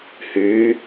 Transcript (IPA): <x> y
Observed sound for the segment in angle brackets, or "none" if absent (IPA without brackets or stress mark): h